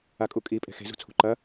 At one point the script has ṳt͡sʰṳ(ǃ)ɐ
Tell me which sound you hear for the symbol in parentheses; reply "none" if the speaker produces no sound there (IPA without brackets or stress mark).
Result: ǃ